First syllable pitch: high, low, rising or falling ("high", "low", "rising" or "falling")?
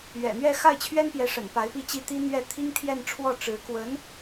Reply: low